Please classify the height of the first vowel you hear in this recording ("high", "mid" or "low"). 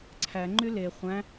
low